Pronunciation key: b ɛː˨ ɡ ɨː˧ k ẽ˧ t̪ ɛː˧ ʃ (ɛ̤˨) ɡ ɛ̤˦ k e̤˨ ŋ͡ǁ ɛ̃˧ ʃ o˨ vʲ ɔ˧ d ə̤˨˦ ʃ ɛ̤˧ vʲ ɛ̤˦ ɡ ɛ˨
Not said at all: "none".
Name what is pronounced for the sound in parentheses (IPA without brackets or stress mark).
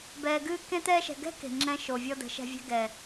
ɛ̤˨